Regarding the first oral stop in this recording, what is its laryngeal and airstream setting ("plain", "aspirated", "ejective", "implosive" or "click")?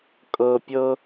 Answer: ejective